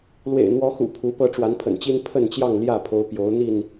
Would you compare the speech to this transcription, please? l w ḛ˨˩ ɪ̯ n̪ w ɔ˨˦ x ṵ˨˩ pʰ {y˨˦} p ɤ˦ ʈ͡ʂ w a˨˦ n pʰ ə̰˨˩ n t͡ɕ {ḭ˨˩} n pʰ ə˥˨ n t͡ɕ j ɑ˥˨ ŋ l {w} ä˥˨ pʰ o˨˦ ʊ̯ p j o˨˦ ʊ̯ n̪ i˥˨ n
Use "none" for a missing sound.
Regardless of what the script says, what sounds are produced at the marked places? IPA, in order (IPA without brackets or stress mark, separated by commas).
u˨˦, i˦, j